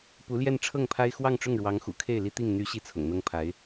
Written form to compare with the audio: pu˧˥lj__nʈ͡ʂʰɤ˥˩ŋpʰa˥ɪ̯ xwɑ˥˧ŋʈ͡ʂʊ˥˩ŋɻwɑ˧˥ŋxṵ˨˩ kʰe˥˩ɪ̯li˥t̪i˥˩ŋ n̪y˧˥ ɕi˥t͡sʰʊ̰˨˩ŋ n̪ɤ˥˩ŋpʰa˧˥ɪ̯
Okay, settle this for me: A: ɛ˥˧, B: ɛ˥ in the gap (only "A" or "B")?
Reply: A